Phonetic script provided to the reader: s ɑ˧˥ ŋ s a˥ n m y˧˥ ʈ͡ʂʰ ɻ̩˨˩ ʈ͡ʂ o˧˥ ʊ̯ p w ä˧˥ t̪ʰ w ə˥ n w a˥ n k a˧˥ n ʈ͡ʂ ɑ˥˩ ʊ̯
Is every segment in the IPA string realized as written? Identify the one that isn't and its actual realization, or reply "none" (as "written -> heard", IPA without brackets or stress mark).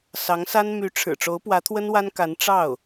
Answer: none